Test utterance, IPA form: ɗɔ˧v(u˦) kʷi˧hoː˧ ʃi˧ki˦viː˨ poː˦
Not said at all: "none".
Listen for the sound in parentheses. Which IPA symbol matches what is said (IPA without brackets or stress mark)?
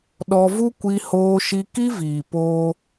u˦